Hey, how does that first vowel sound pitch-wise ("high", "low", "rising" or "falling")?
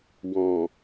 low